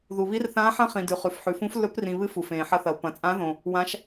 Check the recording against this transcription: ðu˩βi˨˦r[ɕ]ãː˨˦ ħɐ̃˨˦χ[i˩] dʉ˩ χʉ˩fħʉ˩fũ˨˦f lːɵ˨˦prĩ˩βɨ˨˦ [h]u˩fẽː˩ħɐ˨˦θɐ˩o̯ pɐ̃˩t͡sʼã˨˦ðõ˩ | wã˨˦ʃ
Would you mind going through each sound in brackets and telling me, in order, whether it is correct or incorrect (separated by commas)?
incorrect, incorrect, incorrect